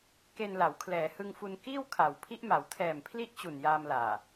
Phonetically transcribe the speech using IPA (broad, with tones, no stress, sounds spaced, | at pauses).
k e˧ n l a˩˦ w kʰ l ɛː˩˦ h ɯ˧ ŋ f u˧ n k iː˥˩ w kʰ a˩˦ w pʰ i˦˥ ʔ m a˩˦ w tʰ ɛː˨˩ m pʰ l i˦˥ ʔ t͡ɕ u˨˩ n j aː˧ m l aː˨˩